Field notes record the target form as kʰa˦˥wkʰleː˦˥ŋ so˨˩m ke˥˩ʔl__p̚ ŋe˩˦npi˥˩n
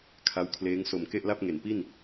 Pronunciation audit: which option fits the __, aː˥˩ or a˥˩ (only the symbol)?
a˥˩